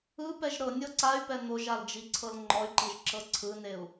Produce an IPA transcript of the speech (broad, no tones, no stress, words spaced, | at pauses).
ɯpɛʒ ɾɤnʲɤ ǀay̯pɛ n̪oʒald͡ʒiǀʰɤl ŋ͡ǃɔy̯ǃiʒǁɤ ǀʰɯneu̯